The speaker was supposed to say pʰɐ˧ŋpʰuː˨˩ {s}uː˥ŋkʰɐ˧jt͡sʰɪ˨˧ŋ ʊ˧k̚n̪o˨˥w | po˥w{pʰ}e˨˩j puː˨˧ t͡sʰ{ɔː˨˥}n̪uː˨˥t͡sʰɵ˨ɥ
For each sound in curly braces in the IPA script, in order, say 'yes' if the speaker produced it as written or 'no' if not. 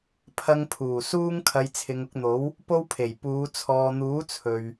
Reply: yes, yes, no

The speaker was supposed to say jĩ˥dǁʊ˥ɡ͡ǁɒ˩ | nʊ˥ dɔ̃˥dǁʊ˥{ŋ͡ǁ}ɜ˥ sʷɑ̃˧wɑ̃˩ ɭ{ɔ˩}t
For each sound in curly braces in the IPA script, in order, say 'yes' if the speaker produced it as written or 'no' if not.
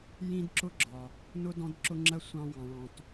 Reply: yes, no

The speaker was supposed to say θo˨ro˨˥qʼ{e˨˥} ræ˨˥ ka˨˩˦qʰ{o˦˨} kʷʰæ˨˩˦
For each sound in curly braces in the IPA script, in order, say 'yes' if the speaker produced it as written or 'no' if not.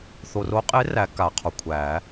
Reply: yes, no

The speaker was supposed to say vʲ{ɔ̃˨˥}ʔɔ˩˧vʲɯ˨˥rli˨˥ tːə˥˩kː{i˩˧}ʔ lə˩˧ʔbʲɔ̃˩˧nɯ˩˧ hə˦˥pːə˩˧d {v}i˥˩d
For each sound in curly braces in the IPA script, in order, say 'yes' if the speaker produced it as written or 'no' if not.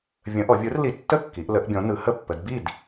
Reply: no, yes, no

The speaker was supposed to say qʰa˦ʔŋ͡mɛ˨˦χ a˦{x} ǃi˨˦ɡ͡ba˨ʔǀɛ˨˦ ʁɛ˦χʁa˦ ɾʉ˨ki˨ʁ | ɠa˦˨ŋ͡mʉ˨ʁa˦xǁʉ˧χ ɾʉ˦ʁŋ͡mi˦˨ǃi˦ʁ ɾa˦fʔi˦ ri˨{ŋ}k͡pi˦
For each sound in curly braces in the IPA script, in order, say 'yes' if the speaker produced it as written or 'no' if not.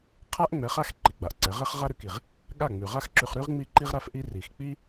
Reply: yes, no

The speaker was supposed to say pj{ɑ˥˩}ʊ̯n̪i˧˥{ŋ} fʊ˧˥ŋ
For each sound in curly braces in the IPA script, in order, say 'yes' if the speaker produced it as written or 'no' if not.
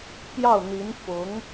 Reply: yes, no

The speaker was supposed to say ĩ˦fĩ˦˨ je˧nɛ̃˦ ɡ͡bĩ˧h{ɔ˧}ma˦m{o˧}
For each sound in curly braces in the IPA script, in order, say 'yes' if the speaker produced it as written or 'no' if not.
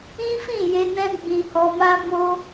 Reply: yes, no

